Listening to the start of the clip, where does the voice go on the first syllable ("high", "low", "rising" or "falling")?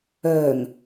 low